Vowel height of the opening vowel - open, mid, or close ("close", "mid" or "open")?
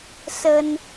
mid